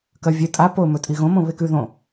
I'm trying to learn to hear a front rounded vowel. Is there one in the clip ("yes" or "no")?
no